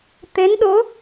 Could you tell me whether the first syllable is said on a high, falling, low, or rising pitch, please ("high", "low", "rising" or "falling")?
rising